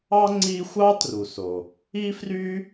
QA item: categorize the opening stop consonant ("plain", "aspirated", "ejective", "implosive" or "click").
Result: click